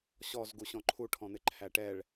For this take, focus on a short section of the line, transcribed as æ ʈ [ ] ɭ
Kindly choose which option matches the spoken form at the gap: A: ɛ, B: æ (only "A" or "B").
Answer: A